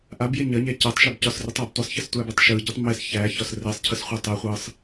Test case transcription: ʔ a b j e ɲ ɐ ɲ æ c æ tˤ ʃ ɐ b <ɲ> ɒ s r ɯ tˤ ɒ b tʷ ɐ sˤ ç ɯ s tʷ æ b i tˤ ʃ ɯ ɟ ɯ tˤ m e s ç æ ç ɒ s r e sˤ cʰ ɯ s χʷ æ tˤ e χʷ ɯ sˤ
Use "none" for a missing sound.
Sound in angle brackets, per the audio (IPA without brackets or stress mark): c